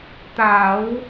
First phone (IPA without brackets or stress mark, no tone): t̪